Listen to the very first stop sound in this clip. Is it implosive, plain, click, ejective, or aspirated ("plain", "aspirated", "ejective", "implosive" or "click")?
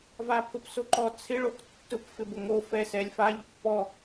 aspirated